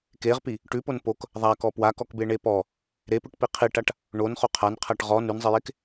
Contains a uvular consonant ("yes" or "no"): yes